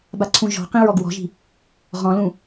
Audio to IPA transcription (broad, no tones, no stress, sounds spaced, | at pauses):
b a ǀʰ ũ ʒ ɔ̤ q ĩ ɹ ɔ ɡ w ɔ̤ ʒ i̤ | ʁ ɔ̃ l ũ